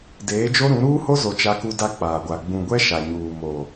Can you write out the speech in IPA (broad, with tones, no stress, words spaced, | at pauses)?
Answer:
deː˨˦d͡ʒo˦ɾũ˨˦ ɾuː˦ho˦zo˨ t͡ʃa˦ku˦ da˦k͡paː˨ɡʷa˨ ɡ͡bũ˨ɡʷɛ˦ ʃa˨ɲuː˨ mo˨